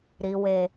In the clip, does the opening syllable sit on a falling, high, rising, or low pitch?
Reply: low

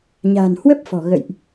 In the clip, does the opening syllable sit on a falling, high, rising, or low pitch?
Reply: low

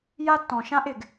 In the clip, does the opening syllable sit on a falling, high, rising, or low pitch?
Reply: high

